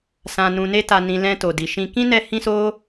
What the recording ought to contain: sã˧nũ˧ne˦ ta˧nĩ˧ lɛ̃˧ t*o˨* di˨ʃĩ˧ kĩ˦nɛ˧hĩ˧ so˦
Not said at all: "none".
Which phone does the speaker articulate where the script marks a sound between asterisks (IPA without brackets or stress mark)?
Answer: o˨